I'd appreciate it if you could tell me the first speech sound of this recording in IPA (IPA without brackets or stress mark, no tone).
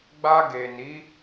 ɡ͡b